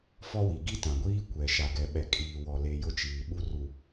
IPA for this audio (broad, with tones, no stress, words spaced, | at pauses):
fɔ˦wi˨ ɡi˦tã˨ɡʷiː˦ kʷɛ˨ ʃa˨ɡɛ˨ɓɛ˨kʼiː˨ wɔ˨le˨ jʊ˦t͡ʃiː˨ ɓu˦ru˨